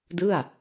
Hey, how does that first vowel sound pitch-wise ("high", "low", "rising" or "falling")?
falling